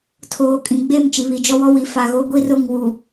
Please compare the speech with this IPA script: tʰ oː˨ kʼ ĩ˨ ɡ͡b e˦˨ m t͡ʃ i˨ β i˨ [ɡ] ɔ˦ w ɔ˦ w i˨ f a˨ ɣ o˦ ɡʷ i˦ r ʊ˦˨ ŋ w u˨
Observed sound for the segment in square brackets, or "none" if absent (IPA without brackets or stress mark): d͡ʒ